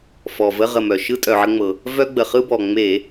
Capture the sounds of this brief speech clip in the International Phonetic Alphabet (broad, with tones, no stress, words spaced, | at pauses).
fɔ˩və˧˥˧ ʁə˧˩mœ˩ ʃɯ˧˥˧tʼœ˩ʕə˧ŋ͡mɤ˩ | vœ˧ɡ͡bə˩χɯ˧bɔ˩ ŋ͡me˧˩˧